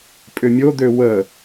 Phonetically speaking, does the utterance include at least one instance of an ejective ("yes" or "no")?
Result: yes